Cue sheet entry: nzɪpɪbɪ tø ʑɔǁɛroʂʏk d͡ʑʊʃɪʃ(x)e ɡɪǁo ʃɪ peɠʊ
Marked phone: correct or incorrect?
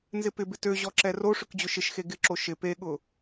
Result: correct